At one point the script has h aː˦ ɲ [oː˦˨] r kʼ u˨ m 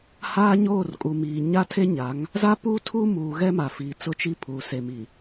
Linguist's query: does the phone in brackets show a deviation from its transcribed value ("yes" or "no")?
no